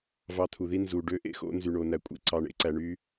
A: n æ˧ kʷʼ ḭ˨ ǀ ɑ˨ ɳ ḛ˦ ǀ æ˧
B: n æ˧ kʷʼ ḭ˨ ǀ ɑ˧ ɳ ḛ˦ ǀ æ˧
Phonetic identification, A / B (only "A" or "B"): B